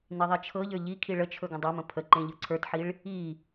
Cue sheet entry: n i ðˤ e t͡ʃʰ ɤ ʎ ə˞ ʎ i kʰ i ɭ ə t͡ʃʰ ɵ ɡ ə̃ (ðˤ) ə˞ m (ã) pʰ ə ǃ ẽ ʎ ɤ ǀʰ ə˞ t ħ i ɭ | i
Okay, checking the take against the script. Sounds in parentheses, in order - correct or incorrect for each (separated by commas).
incorrect, incorrect